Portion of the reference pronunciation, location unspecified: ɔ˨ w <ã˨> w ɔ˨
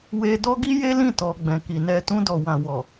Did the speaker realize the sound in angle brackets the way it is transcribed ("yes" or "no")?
yes